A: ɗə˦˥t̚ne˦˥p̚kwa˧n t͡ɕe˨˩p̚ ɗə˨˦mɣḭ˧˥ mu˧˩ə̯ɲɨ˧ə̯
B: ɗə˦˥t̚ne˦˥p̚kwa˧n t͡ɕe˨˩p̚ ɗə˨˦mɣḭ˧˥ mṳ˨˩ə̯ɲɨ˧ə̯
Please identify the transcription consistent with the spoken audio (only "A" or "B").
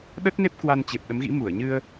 A